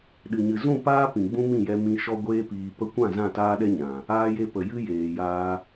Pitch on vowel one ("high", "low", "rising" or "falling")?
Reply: low